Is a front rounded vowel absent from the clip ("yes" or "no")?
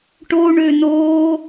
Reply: no